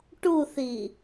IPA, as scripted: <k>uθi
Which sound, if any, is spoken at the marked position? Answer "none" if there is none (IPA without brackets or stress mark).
ʈ